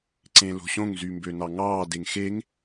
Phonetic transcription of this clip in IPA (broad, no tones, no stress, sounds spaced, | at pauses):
ǀ ẽ l o̤ ɕ õ ŋ z y m b ø n ɑ ŋ ɑː d e ŋ x e ŋ